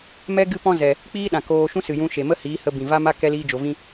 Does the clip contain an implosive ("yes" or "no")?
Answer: yes